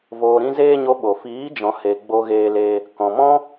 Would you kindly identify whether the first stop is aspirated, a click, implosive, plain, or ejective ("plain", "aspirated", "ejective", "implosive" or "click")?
implosive